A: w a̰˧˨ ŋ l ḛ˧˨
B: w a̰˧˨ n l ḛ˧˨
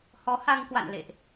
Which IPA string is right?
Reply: B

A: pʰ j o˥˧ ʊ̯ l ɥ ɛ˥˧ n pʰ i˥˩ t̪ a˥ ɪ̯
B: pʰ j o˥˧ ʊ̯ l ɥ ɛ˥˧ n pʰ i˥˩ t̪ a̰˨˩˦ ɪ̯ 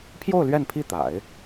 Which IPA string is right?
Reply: B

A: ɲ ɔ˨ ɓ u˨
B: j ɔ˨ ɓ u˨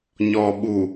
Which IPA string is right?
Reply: A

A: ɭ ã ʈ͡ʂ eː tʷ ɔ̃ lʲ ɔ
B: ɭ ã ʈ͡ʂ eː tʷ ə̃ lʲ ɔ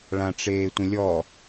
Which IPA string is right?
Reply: B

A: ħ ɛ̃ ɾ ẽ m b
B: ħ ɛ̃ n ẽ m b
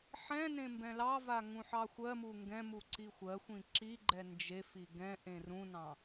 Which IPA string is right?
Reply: B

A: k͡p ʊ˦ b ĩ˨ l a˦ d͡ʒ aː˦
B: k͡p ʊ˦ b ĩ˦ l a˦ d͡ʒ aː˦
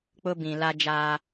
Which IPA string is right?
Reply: A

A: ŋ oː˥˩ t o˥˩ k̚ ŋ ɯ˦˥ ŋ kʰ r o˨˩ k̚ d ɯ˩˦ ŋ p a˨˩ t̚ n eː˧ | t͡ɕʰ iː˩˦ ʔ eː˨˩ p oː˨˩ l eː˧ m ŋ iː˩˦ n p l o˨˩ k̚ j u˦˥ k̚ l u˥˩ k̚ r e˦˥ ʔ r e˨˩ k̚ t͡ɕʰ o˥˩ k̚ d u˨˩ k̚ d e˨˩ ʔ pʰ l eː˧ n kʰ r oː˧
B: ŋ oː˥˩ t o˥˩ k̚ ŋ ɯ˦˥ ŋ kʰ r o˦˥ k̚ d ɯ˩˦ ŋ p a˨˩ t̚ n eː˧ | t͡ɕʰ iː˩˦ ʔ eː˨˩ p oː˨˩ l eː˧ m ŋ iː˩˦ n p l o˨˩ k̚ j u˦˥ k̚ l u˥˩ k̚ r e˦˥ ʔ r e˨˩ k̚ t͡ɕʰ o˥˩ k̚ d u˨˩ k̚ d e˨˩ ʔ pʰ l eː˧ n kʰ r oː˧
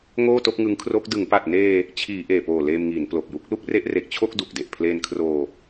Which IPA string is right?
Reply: B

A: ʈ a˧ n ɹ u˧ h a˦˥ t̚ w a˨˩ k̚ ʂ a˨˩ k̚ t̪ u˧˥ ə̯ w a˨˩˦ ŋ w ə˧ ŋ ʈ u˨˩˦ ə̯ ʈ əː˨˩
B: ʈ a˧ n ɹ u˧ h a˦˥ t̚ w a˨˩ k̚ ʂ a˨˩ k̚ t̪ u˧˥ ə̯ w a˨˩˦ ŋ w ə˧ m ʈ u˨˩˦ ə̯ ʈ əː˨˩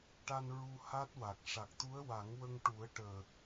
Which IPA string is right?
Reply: A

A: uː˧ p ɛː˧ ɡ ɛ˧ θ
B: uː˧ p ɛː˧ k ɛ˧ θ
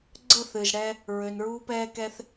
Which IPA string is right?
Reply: B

